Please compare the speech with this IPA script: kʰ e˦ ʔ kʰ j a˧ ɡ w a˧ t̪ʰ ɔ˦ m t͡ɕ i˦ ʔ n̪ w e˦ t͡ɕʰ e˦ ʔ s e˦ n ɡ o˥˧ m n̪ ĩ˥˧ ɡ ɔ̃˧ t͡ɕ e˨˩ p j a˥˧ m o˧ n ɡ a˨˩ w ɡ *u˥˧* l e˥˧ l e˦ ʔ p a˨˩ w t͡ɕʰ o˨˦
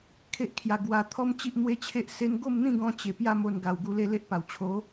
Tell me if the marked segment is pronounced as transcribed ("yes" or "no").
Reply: no